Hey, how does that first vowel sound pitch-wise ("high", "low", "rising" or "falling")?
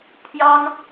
high